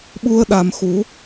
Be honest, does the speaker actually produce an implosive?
yes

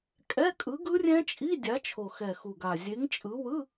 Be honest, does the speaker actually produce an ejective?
yes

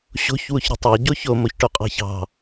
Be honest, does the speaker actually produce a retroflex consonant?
yes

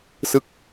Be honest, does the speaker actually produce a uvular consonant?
no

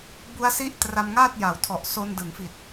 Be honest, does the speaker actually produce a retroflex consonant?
no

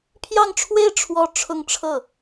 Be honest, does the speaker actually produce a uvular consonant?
no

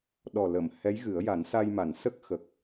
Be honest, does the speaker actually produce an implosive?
yes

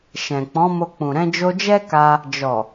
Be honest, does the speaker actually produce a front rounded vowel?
no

